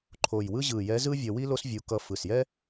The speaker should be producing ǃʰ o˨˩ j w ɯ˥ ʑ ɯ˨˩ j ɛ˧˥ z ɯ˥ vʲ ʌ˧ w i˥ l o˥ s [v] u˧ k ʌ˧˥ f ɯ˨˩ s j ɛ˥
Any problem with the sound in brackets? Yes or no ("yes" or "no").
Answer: yes